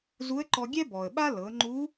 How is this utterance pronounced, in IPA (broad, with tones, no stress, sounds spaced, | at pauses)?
z u˧˥ ə̯ ǃ ɔ˧ ɡʲ ɛ˥ b ɔ˩ ə̯ ɓ a˥ l ɤ˩˧ ŋ͡ǃ u˧˥